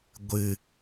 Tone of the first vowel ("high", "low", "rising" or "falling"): low